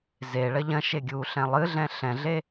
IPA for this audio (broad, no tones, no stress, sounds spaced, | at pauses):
z e ɭ ɐ ʎ ɐ̃ ʃ e ɡʲ uː ɬ ɛ̃ lˠ ɨ ɮ ɛ̃ ɬ ɛ̃ ɮ e